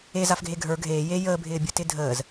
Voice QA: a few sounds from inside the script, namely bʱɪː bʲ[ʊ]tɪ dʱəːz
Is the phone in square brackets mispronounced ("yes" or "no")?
no